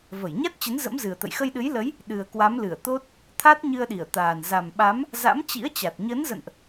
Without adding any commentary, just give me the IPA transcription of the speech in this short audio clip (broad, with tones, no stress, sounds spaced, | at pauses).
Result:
v ə˧˩ j ɲ a˦˥ t̚ t͡ɕ ə˨˦ n z ə̰˧˥ m z ɨ˨˩ ə̯ t̪ ə̰˧˨ j x ə˧ j ɗ ɨ˨˦ j l ə˨˦ j | ɗ ɨ˨˩ ə̯ k w a˨˦ m l ɨ˧˩ ə̯ t̪ o˦˥ t̚ | t̪ʰ a˦˥ t̚ ɲ ɨ˧ ə̯ ɗ i˧˩ ə̯ t̪ aː˨˩ n z a˨˩ m ɓ a˨˦ m | z a̰˧˥ m t͡ɕ ḭ˧˥ ə̯ t͡ɕ a˨˩ t̚ ɲ əː˨˦ n z ə̰˧˨ n ʔ